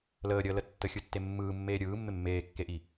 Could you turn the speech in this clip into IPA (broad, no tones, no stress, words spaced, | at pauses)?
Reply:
ləːɾʲəːlə tːəxʲɯtːe mːɯːmːeː ɾʲɯːmːɪ mːeːkːeʔi